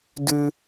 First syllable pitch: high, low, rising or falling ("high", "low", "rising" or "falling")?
high